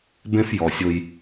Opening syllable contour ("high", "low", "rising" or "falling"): high